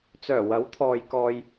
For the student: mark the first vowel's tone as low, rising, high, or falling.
low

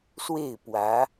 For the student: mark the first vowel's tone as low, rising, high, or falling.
falling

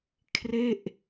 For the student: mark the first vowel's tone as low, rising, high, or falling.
falling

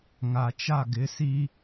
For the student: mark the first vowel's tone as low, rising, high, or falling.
low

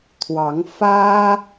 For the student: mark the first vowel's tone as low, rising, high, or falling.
rising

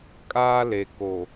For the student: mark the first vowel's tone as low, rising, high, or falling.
high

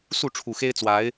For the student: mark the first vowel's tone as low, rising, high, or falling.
falling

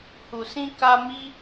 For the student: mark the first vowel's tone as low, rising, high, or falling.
low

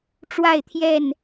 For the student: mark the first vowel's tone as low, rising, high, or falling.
falling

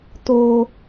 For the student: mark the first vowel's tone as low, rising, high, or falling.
high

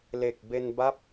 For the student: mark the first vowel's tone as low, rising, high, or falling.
low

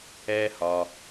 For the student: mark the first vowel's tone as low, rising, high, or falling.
high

